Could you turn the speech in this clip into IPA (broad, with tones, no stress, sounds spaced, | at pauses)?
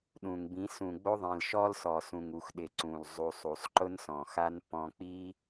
ɗ ũ˨ ŋ b ĩ˨˦ s ũ˨ ɡ͡b o˦ ðˤ ĩ˨ l ʃ ɔ˦ l s ɔ˨ s ũ˨ ŋ u˨ x ɗ ɪ˨ ǀ ũ˨ l zˤ u˧ sˤ u˨ sˤ ǃ ʊ˦ n s ɔ̃˨ x a˦ n p ɔ̃˧ k͡p i˦